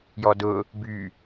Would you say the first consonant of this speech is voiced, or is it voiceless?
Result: voiced